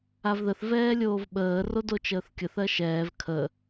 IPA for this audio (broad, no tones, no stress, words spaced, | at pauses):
avðəθ vɛːlʲoːvɓəː rodot͡ʃəːθkʲəθ ɜʃɛːv kʰə